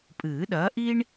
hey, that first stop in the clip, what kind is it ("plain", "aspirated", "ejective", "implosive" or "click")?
ejective